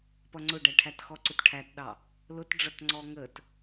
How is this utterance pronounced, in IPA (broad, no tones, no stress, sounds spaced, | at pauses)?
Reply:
p ʌ ŋ͡ǀ ʊ ɖ æ ʈʰ æ t x ɔ ǀ ʊ t ʈʰ æ t ɗ ɑ | l ʊ t ɖ͡ʐ ʌ t ŋ͡ǀ ɔ ŋ ə t